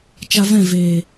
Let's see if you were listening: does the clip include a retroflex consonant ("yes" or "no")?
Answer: no